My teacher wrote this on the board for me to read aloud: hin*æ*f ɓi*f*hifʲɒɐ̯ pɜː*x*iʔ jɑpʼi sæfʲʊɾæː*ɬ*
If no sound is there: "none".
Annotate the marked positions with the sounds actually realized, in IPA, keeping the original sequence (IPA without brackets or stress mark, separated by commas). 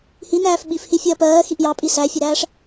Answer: æː, f, x, ʂ